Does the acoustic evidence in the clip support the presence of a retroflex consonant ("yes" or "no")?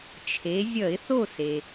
no